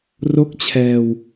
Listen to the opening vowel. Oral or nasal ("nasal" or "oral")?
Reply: oral